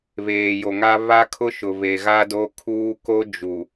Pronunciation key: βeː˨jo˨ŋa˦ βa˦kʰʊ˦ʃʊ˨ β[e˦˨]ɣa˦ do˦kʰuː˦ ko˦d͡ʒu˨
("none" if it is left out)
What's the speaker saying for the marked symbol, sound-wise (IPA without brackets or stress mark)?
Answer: e˨